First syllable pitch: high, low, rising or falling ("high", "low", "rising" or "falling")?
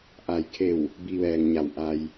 low